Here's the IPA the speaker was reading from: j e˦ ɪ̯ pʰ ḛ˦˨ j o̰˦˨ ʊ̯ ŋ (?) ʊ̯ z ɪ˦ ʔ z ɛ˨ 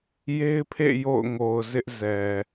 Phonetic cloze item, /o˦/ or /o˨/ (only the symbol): o˨